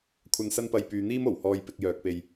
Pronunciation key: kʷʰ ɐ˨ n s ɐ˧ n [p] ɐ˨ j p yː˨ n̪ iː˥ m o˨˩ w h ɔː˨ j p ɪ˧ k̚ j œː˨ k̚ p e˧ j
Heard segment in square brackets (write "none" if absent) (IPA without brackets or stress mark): p